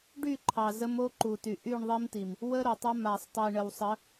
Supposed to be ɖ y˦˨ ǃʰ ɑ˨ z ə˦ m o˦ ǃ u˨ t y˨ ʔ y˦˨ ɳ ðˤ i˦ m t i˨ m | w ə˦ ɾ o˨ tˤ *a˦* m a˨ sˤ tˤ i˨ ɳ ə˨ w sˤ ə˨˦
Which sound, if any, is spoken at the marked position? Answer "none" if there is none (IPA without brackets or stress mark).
a˦